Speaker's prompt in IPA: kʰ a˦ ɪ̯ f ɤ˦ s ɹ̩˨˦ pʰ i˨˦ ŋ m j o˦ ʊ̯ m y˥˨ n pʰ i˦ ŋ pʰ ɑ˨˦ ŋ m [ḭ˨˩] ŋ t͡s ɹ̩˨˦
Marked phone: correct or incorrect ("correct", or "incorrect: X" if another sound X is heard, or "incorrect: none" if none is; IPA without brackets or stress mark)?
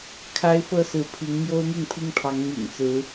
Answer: correct